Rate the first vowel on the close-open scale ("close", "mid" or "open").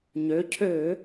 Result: mid